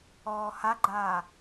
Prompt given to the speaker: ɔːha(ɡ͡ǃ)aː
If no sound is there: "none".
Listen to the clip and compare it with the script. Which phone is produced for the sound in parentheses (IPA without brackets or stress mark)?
ɡ͡ǃ